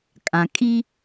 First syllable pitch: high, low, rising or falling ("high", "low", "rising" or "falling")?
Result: low